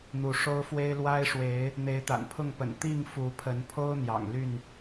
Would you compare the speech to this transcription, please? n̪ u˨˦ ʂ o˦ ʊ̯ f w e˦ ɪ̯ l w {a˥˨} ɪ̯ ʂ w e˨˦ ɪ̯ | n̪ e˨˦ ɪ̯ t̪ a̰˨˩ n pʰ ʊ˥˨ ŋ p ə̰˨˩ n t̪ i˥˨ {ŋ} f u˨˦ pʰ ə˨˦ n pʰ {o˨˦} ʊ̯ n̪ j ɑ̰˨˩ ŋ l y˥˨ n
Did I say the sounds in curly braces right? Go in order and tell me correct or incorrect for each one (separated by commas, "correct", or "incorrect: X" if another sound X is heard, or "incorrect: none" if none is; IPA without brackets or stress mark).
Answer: incorrect: a˦, correct, incorrect: o˦